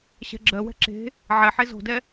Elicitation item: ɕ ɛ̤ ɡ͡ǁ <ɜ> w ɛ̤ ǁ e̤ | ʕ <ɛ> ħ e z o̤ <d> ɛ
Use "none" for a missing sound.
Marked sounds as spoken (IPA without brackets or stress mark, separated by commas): ɜ, ɛ, d